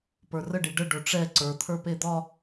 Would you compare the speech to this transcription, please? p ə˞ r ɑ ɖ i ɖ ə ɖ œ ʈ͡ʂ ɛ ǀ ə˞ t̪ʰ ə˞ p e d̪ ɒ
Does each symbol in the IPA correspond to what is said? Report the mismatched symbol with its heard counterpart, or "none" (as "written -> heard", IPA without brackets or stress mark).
ɑ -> ə